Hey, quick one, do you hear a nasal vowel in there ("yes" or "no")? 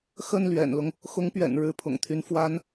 no